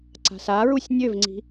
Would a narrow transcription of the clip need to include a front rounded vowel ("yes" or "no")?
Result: yes